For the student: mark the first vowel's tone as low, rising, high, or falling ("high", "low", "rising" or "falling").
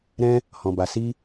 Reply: high